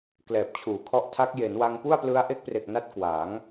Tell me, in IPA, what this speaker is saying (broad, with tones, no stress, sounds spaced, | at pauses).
k l ɛː˨˩ p̚ t͡ɕʰ uː˩˦ kʰ ɔ˦˥ ʔ tʰ a˦˥ k̚ j e˩˦ n w a˧ ŋ p u˥˩ a̯ p l ɯ˦˥ a̯ ʔ e˦˥ k̚ p r e˨˩ k̚ n a˥˩ t̚ k w aː˩˦ ŋ